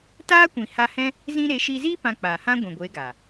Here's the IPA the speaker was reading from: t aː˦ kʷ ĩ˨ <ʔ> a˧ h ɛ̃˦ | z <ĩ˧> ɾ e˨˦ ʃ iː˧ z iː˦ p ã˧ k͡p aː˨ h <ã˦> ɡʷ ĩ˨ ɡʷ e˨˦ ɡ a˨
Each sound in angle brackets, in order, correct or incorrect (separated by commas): incorrect, correct, correct